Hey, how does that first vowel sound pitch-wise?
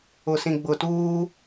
low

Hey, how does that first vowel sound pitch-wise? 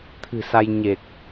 low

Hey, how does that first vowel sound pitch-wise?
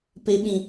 low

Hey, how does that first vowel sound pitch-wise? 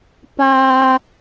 low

